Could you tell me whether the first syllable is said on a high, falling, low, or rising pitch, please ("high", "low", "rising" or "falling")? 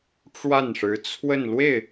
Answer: falling